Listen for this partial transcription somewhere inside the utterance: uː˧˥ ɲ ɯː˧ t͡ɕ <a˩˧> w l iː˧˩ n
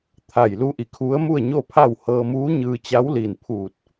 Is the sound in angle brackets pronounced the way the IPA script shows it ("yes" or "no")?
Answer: no